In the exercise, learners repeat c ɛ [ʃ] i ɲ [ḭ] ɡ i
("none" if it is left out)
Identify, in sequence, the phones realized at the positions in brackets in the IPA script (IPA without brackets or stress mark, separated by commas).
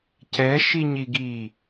ʃ, i